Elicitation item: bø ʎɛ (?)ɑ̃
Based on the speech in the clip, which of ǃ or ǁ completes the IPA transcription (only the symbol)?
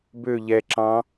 ǁ